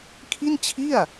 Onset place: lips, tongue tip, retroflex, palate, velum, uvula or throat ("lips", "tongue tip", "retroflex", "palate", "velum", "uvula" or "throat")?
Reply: velum